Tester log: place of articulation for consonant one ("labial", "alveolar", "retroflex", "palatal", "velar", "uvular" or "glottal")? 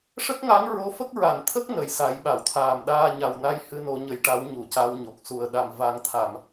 retroflex